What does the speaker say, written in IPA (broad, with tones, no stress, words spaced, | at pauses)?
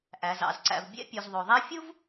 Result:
ʔæ˩zɑ̰˩zǀæ̰˩v bʲɛ̰˥pʲʉ˩zðˤo˩ðˤæ˥ fʲu˥v